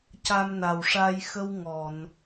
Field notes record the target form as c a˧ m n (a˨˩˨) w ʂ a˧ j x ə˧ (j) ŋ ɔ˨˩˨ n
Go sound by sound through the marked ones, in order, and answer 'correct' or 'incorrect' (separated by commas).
incorrect, incorrect